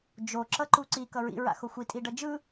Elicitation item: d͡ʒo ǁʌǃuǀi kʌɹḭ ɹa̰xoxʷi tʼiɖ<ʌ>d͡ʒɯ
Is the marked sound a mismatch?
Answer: no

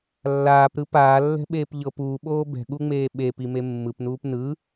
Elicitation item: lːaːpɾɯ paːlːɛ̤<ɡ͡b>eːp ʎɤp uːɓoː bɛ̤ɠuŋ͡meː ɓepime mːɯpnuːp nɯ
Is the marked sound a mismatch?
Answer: yes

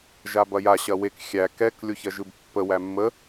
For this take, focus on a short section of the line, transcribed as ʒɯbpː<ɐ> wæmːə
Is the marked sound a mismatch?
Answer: yes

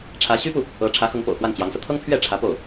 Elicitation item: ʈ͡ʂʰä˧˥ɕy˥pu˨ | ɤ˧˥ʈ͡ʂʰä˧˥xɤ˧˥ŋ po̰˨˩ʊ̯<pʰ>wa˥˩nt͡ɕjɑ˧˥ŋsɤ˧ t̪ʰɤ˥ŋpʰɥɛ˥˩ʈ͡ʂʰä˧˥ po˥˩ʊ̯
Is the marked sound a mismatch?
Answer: yes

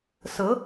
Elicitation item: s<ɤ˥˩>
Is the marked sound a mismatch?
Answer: yes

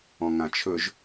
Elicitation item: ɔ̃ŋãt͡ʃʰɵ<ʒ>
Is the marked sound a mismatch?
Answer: no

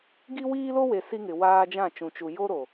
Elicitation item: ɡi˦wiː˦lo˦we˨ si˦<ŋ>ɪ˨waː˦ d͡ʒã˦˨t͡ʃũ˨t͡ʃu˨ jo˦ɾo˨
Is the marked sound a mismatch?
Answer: no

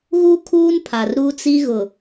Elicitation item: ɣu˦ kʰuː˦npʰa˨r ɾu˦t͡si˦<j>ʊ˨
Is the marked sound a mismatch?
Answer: yes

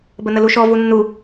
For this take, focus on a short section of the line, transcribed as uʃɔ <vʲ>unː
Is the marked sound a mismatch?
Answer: yes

